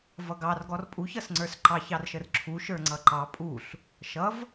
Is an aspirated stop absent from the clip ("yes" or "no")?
no